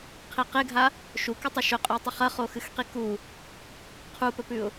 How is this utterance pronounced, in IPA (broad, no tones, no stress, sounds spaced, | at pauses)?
qʰ i q e ɡʱ a | ʃ u k ɨ tˤ ɐ ʃ ɵ qʼ ɵ w tˤ ɨ χ ɐ χ o x ɨ x q i k u | qʰ u p ɵ p ʉ ʊ̯